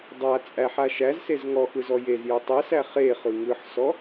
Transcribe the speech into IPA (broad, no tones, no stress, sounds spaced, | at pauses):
dˤ a t͡sʼ æ ħ a ʃ æ z s e z ŋ ɔ x ɯ z ɔ j e z j ø tˤ ɯ s æ χ e χ ɯ ŋ ɯ ħ s ɔ